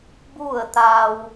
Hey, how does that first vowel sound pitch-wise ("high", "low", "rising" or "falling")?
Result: falling